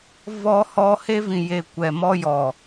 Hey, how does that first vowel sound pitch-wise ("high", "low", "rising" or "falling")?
high